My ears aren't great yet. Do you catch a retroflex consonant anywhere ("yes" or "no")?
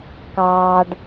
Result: yes